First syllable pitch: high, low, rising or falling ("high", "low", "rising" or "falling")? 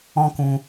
high